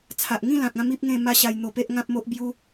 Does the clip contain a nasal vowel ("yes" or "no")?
yes